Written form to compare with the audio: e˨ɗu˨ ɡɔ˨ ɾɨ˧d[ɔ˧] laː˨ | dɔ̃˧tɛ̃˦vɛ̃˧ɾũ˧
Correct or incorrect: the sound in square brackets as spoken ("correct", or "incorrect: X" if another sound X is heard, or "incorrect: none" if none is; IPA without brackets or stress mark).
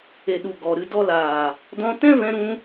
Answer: incorrect: ɔ˦